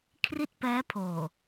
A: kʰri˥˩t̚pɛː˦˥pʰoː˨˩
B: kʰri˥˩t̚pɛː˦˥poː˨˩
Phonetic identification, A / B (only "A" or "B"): A